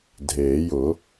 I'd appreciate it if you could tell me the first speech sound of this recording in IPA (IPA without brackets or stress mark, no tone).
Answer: dʱ